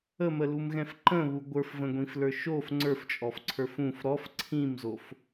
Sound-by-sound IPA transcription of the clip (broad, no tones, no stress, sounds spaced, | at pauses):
ə m ə l u m ɣ ɛ̃ f ǃ ə̃ β u ɡʷ ə˞ f v ə̃ ɡʷ ĩ f l ə˞ ʃ o f ŋ͡ǀ ə˞ f t͡ʃʼ ɔ f ǀʰ ə˞ f ũ f ɾ ɔ f ǀʰ ĩ m z o f